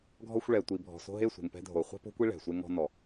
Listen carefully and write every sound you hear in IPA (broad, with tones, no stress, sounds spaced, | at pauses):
ɡʱ ɔ˧ xʷ ɭ ɛ˨ tʷ i˨ bʱ ɔ̤˨ s o̤˧ ɦ e˦˨ sʷ e̤˨ ŋ p ɛ̤˧ dʱ o˨ χʷ ɛ̤˦ p o̤˦ kʷ i˦ ɭ ɛ̤˨ sʷ e˦ ŋ ɔ̤˧ n ɔ˨